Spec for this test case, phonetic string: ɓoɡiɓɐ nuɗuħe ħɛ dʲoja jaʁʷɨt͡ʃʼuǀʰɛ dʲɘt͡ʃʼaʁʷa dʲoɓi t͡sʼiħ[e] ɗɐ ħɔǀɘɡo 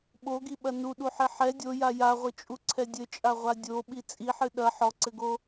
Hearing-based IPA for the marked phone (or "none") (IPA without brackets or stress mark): ɨ